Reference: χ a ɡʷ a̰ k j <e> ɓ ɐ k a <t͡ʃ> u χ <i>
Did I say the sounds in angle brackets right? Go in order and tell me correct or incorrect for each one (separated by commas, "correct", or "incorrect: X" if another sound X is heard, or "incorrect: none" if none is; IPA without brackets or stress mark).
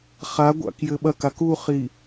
incorrect: ɘ, incorrect: k, correct